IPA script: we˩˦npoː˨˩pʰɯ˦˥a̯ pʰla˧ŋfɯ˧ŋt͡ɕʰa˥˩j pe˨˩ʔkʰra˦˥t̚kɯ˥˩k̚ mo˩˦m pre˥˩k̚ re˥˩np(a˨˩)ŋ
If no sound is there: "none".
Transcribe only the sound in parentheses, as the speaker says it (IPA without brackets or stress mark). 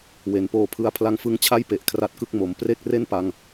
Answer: a˧